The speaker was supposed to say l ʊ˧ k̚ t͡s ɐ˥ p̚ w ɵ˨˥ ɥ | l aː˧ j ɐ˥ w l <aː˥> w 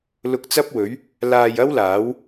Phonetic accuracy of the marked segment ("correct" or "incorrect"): incorrect